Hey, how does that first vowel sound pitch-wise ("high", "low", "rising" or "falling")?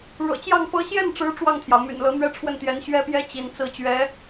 low